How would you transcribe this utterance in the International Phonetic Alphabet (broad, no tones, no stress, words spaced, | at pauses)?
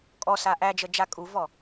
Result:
kʼɔsa ʔæd͡ʒəd͡ʒa kʼuvɔ